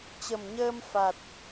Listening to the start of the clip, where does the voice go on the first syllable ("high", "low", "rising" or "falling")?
low